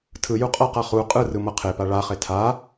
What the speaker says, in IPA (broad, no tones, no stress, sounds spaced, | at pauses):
tʰ ɯ j u qʼ ʌ q a χ u qʼ ɯ r ɯ m ʌ qʰ e p a ɭ a χ e tʰ a